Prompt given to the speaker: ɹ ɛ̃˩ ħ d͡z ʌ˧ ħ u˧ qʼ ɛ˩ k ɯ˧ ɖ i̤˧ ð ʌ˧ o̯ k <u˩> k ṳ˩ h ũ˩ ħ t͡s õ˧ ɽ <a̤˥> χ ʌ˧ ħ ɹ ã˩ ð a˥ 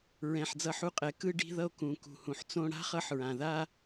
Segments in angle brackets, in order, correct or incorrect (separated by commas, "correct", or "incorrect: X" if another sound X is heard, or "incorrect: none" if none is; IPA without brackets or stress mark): incorrect: ũ˩, correct